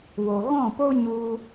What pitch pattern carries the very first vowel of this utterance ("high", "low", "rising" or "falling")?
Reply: low